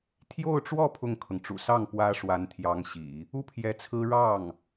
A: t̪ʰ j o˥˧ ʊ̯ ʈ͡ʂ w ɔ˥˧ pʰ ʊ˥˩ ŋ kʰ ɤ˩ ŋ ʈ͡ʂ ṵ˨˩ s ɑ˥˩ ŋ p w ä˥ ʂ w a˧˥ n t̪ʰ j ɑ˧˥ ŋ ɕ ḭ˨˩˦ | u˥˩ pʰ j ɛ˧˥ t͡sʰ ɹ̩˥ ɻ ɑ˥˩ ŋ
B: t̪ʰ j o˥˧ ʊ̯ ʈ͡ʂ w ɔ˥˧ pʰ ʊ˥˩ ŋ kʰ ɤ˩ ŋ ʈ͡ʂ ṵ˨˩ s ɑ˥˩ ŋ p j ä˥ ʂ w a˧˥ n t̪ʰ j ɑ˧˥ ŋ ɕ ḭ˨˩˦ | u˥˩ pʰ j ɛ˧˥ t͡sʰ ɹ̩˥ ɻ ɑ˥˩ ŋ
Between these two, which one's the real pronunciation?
A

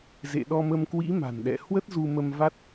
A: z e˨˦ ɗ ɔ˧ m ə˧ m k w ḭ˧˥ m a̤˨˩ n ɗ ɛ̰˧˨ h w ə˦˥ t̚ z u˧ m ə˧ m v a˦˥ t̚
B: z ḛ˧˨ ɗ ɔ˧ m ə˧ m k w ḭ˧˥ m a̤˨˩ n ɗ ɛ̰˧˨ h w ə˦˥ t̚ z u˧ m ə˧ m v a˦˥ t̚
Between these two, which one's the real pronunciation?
B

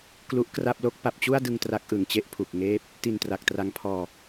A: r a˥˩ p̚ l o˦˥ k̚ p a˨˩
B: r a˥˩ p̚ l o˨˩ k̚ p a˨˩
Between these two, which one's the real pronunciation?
A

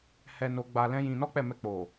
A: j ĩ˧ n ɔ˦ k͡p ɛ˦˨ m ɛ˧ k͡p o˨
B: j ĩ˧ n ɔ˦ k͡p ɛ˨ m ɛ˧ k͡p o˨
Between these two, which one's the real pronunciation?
A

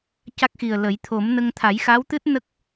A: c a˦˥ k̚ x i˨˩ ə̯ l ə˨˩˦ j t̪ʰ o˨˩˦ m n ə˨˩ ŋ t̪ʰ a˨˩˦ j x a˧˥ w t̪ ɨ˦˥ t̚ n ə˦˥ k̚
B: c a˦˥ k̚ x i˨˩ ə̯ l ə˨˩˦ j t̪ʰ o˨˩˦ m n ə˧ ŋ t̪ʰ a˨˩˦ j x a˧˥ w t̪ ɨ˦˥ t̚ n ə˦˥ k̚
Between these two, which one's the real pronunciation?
B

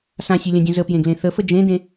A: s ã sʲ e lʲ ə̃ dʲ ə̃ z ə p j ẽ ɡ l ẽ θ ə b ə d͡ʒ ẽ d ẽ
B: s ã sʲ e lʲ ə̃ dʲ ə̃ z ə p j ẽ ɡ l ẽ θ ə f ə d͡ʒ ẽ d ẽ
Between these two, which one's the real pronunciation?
B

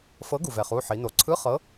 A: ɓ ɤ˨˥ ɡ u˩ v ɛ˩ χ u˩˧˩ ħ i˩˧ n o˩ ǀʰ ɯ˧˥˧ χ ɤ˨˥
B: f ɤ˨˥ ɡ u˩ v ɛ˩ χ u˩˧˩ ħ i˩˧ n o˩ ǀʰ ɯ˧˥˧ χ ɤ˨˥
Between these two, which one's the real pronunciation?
B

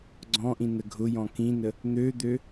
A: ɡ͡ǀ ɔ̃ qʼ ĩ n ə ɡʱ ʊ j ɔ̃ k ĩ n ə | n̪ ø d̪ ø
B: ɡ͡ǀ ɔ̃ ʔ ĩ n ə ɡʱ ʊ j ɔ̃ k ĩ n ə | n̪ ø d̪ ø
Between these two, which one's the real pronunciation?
B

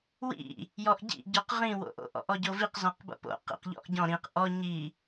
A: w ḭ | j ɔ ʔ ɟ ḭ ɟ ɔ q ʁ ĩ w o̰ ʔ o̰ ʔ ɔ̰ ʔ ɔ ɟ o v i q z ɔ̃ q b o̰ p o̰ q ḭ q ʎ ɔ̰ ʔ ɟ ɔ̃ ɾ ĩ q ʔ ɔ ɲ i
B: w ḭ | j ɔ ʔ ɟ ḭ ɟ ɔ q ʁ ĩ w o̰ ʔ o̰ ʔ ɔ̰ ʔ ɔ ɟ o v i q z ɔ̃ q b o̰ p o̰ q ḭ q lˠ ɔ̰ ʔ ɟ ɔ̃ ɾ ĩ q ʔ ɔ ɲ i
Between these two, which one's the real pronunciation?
A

